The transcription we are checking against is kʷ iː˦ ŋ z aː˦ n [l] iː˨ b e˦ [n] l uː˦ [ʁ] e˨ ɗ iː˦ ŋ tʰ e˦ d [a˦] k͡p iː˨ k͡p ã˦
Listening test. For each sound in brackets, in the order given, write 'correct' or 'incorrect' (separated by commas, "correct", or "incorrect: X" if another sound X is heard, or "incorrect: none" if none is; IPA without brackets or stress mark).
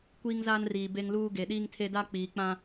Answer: incorrect: r, incorrect: ŋ, incorrect: ɡ, correct